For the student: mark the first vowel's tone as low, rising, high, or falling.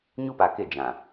high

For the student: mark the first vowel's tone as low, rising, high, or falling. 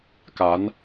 rising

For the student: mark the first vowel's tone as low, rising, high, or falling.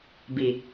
low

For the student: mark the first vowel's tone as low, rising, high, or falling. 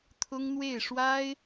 high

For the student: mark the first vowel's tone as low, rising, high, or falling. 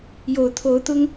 low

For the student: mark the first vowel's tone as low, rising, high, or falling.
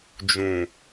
low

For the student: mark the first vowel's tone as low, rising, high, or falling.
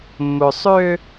low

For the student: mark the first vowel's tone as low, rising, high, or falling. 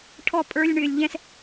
high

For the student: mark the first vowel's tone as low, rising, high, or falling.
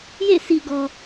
falling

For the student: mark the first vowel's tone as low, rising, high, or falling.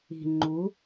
low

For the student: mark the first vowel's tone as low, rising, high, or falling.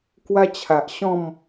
high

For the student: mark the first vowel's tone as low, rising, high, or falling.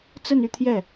falling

